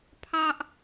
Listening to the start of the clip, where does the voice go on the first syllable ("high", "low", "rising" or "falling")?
high